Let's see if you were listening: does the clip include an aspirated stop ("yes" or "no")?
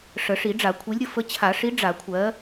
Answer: yes